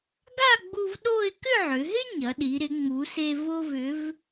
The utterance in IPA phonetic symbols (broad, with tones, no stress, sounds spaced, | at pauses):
ɡ a˥˧ ɡ͡b u˧ v ɗ o˥˧ ɪ̯ k ʏ˥˧ ʕ ʏ˩˧ ɦ ɪ˥ ɲ ɐ˩˧ ɗ i˩˧ ɾ ɪ˩˧ ŋ͡m u˩˧ s e˧ v o˧ v ʏ˩˧ v